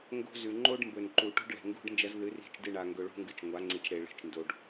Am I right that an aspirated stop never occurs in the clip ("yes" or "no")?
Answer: yes